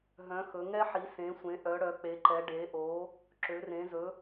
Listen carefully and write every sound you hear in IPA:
ɦ œ̃˨˦ x ɵ˨˦ ŋ ɛ˦ ħ i˨˦ s ẽ˨˦ sʷ ẽ˨˦ ʔ œ˨˦ ɽ œ˨˦ k͡p e˨˦ ǃ ɛ˨˦ ɖ e˨˦ ʔ o˨˦ | ǁ ø˨˦ r ẽ˨˦ z ɵ˨˦

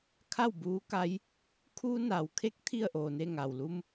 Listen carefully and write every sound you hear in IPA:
kʰ a˥˨ w b uː˧˥ k a˧˥ j | kʰ uː˧ n a˩ w kʰ e˧˥ k̚ t̪ʰ i˥˨ ə̯ ʔ oː˩ n e˥˨ ŋ a˩ w l u˧ m

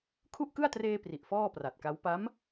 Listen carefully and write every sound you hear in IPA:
kʰ u˥˩ ʔ k ɯ˥˩ a̯ t r eː˧ p r i˨˩ ʔ f ɔː˥˩ p r a˨˩ t̚ k a˦˥ w p a˦˥ m

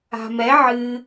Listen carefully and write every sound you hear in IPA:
a̤ m ɛ ʕ ɨ

